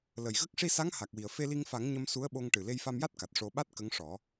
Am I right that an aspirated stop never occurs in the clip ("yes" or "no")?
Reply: yes